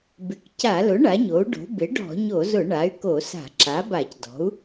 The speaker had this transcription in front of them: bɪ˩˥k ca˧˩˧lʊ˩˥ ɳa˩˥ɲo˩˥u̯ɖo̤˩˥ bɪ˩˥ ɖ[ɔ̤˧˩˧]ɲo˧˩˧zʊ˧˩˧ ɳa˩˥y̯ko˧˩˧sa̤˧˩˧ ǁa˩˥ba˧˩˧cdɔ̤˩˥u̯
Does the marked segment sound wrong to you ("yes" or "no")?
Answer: no